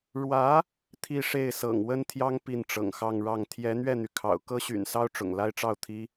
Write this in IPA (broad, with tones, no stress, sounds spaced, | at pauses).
ɻ w ä˧˥ | t̪ʰ i˥˧ ʂ e˥˩ ɪ̯ s ɤ̰˨˩ ŋ w ə˥ n t̪ʰ j ɑ˥ ŋ p i˥˩ n ʈ͡ʂ ɤ̰˨˩ ŋ x ɑ˥˧ ŋ ɻ ɑ˥˩ ŋ t̪ʰ j ɛ˧˥ n̪ ɥ ɛ˥˩ n̪ y˩ kʰ ɑ̰˨˩ ʊ̯ k ɤ˥ ɕ y̰˨˩ n s ɑ˥ ʊ̯ ʈ͡ʂ ʊ̰˨˩ ŋ l a˥ ɪ̯ ʈ͡ʂ ɑ˥˩ ʊ̯ t̪ʰ i˥